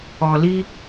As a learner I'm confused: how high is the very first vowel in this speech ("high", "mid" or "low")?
mid